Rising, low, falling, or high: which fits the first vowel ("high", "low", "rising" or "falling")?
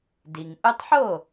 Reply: low